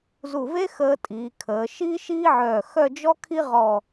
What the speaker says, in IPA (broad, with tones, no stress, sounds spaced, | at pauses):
z u˧˩ v e˥ x əː˧ tʼ iː˩˧ kʰ əː˩˧ ʃ iː˥ ʃ iː˥ ʕ œː˧˩ x œ˥˧ d͡ʒ ɔ˥ kʰ i˥ ʁ ɔ˧˩